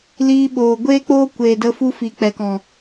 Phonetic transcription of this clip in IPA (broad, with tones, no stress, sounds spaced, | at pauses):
l iː˧ ɓ oː˨ ɡʷ eː˦ k͡p oː˦ kʷ eː˨ d ə˧ f u˧ f i˨ k͡p ɛ˨ k ɔ̃˨